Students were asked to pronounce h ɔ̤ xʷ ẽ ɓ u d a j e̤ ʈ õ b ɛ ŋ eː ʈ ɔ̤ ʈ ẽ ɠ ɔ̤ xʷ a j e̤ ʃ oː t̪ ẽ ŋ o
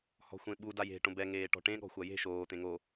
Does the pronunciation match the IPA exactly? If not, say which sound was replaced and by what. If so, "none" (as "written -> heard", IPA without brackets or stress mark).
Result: none